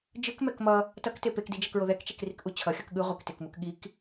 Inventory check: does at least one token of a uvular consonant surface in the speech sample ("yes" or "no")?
yes